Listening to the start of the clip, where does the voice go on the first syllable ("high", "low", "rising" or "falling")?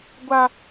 high